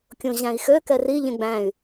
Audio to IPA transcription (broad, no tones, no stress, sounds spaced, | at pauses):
kʲ õ ʑ æ̃ i̯ x ø k ɛ r i ʎ ẽ ɡ͡b æ̃ y̯